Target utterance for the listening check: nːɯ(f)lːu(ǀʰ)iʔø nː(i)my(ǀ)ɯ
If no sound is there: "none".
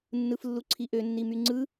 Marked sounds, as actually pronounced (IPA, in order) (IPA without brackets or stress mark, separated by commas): f, ǀʰ, i, ŋ͡ǀ